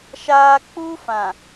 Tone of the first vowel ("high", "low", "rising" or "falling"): high